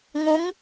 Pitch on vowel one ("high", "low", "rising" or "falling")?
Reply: rising